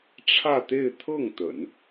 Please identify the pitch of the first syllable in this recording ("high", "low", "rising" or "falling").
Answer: falling